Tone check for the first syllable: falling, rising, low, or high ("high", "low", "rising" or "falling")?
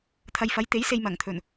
low